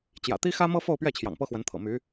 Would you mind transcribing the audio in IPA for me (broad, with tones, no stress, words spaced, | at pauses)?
t͡ɕjä̰˨˩t̪i˥xä˥mɤ˥ fo˥˧ʊ̯pɥɛ˥˩t͡ɕʰjɑ̰˨˩ŋ pɤ˥xwə˧˥nt̪ʰɤ̰˨˩ my˧˥